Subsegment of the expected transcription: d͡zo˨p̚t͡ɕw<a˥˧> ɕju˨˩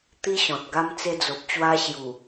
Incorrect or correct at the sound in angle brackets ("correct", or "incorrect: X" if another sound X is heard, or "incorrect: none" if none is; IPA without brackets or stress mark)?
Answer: incorrect: a˧